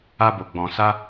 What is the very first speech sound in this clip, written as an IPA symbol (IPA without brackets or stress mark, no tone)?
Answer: a